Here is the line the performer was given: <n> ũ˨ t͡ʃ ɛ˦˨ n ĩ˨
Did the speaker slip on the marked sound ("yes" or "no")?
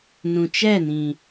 no